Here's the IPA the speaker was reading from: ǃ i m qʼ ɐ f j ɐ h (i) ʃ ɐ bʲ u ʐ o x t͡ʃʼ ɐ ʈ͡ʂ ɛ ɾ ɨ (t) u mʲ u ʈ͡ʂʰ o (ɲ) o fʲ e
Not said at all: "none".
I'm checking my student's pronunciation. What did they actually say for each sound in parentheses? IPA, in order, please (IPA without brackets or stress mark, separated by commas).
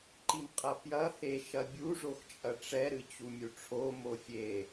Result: e, t͡ɕ, m